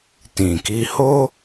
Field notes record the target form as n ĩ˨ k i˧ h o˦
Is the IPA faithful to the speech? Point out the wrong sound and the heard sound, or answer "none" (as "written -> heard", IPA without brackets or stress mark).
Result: n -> t